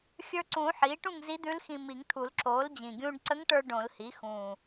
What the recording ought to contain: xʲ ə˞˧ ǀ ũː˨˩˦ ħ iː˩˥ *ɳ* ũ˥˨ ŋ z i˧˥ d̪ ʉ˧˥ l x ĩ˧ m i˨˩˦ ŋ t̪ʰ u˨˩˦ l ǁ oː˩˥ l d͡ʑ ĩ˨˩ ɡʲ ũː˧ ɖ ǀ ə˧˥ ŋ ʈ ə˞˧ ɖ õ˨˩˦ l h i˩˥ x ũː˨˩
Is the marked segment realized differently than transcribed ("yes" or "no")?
yes